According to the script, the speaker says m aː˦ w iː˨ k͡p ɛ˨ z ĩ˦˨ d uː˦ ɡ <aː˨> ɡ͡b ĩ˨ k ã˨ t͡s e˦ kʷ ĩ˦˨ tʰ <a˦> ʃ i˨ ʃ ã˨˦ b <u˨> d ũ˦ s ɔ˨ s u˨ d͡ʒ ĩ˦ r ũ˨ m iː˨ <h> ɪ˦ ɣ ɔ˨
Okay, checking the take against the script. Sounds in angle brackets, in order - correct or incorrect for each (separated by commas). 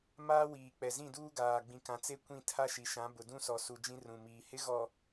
correct, correct, incorrect, correct